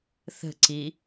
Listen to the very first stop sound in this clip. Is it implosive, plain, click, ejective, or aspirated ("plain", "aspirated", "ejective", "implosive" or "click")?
click